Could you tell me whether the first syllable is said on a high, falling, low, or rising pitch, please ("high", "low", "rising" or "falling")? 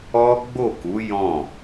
high